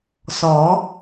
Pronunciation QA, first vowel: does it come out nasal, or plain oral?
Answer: oral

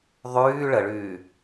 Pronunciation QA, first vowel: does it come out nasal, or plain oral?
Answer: oral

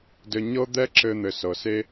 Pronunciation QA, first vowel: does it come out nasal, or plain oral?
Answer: oral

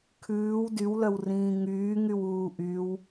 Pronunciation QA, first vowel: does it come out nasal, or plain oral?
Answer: oral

